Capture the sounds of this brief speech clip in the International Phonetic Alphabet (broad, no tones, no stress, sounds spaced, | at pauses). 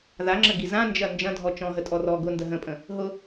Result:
ð a ŋ͡ǁ ə ɡ i z ã n d͡ʒ ɐ n d͡ʒ ɐ̃ dʱ ɔ t͡ʃ ɔ̃ ɦ ə tʼ ɔ r ɔ ɡ ʊ n d ə ɦ ə̃ pʼ ə̃ | ɦ ʊ